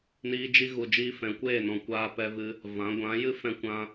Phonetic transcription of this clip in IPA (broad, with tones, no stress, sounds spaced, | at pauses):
n iː˧ d͡ʒ i˧ ɣ u˨ d͡ʒ iː˧ f ɛ̃˨ kʷ eː˦˨ n ɔ̃˨ kʷ aː˧ p ɛ˧ v ɨ˧ | v ã˨˦ ɡʷ ã˨˦ j ɨ˦ f ɛ̃˧ kʷ ã˧